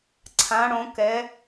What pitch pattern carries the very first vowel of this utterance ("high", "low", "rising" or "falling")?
rising